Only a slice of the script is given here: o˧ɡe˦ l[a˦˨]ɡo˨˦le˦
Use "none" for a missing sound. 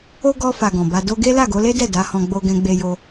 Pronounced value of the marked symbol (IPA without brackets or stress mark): a˦˨